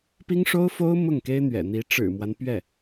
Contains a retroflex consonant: yes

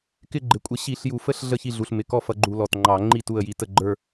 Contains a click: yes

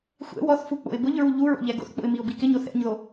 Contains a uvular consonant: no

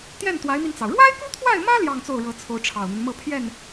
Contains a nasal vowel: no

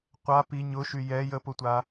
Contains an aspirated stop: no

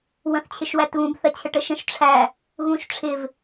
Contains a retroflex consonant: yes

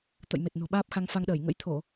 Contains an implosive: yes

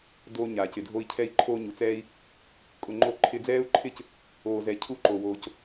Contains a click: yes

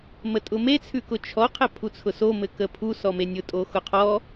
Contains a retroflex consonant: no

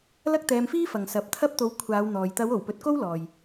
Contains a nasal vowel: no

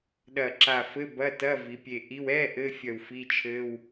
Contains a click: yes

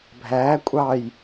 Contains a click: no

